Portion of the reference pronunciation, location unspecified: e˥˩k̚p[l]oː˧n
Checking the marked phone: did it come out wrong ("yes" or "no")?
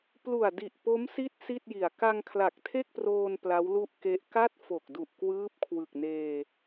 yes